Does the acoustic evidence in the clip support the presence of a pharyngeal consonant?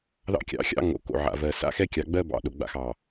yes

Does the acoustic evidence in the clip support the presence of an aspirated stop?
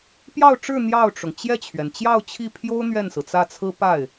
yes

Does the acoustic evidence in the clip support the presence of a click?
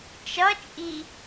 no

